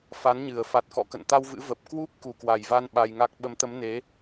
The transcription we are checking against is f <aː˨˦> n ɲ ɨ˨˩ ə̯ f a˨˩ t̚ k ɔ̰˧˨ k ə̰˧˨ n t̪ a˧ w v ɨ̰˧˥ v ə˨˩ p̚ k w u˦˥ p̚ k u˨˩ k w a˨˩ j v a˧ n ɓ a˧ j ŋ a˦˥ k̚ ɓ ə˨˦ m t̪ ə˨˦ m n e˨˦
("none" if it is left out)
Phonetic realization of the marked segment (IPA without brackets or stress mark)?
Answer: a˨˦